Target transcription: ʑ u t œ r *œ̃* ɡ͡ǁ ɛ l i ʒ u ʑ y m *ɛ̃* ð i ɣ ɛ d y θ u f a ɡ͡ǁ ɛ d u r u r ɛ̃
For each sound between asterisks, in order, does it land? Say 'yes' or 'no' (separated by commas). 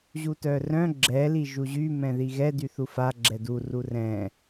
yes, yes